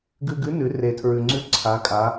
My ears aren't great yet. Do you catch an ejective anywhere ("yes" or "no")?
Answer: yes